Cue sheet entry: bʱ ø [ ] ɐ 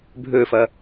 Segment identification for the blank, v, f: f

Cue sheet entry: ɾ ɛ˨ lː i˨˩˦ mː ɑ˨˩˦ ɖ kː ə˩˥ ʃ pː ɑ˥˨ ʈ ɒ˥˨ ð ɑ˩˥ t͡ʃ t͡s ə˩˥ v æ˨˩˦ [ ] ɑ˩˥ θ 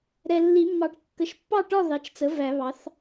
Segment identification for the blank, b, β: β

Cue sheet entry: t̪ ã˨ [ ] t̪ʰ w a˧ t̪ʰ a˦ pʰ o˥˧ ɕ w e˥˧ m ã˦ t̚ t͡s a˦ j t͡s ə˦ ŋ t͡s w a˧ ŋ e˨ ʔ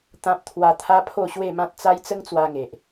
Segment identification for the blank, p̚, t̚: p̚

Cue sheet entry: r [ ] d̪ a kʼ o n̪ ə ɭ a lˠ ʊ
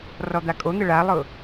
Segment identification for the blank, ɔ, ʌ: ɔ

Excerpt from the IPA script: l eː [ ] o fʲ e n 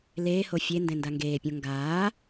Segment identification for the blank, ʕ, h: h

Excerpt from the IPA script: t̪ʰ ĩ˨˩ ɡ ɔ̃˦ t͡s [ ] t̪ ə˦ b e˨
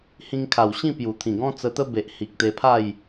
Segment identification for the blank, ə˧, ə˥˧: ə˧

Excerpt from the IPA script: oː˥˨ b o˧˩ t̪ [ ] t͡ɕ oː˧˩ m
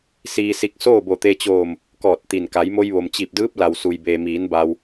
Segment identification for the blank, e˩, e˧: e˧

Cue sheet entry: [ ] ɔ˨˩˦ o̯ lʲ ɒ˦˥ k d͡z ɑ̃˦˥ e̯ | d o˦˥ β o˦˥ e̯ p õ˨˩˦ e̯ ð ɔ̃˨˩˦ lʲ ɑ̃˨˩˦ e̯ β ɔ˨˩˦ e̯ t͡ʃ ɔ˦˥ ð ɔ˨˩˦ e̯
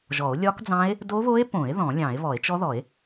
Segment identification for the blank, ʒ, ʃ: ʒ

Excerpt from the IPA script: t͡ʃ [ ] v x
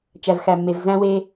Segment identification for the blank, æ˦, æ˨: æ˨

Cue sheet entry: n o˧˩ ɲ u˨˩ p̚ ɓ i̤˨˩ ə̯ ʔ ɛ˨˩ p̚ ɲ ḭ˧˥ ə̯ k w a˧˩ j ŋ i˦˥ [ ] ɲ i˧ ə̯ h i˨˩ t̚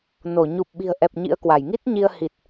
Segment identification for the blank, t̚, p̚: t̚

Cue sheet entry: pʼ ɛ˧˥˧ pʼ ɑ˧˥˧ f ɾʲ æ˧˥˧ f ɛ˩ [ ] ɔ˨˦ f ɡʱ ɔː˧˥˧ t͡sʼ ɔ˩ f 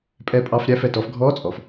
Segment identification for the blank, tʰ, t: t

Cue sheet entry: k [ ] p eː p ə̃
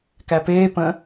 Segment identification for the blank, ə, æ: æ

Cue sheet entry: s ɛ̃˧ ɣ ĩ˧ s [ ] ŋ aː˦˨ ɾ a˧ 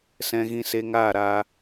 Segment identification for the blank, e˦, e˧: e˧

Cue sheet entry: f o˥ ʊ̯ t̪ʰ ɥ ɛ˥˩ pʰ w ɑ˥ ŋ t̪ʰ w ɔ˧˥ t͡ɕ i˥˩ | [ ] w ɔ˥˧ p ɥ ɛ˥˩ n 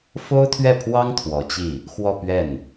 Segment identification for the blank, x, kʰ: x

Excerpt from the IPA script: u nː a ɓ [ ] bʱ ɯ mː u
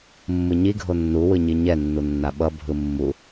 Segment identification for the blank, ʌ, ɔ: ʌ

